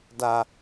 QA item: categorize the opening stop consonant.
plain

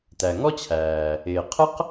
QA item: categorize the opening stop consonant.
plain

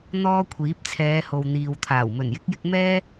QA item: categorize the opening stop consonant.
aspirated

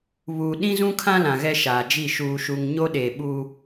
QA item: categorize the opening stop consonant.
implosive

